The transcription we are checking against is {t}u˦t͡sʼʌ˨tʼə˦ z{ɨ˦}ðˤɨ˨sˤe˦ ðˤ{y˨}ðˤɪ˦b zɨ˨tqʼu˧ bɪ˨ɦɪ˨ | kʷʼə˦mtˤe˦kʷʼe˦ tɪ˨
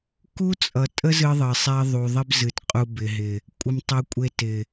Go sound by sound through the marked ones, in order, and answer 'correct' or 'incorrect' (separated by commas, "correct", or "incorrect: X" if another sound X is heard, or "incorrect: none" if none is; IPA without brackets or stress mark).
incorrect: k, correct, incorrect: u˨